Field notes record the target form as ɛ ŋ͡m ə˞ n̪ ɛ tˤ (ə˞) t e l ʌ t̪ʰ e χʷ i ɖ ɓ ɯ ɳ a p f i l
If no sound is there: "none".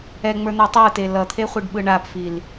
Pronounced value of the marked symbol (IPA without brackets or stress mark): ə˞